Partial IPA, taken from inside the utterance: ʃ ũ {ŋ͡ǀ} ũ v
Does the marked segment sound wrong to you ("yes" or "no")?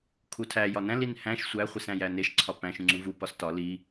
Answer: no